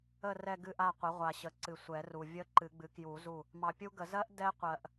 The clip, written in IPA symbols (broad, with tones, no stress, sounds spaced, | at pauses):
ə˦˨ r ɛ˦˨ ɡ ɨ˦˨ ʔ a˦˨ qʷ ə˩˥ ʁʷ a˨ ɕ ə˩˥ ǀ ɨ˨ sʷ ɛ˨˩˦ r u˨ vʲ ə˦˥ ǃ ɨ˨˩˦ ɡ͡b ɨ˩˥ k j u˨˩˦ z u˦˨ | m ɑ˨ pʲ u˦˥ ɡ ə˨˩˦ z ɜ˦˥ ʔ d ɛ˦˥ qʷ ɜ˨ ʔ